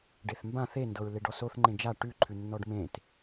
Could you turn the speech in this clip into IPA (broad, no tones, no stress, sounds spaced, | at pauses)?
ɖ e θ m b ã θ e n d ɤ ɹ l e ɖ ɔ s o θ ŋ͡ǃ ẽ d͡ʒ a ʈ ʉ ǃʰ ʉ nː ɔ ɖ m ẽ t